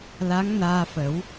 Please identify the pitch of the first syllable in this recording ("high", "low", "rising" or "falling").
rising